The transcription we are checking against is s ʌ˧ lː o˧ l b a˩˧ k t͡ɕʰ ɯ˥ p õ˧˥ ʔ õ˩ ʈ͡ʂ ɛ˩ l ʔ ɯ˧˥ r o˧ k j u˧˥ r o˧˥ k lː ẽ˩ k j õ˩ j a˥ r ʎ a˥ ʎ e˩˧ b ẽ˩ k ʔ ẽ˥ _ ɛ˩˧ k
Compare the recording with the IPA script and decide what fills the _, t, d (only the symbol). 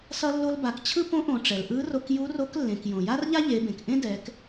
d